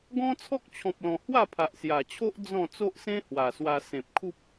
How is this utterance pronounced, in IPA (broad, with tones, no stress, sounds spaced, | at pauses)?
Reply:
ɡ ɔ̃˦ t͡sʰ ɔ˦ k̚ t͡ɕʰ ɔ̃˨ p̚ l ɔ̃˨˩ h w a˥˧ pʰ a˨ ʔ s j a˨˩ t͡ɕʰ o˦ ʔ d͡z ɔ̃˥˧ t͡s o˦ ʔ s ẽ˦ h w a˨˩ s w a˧ s ẽ˨ p̚ kʰ u˦ p̚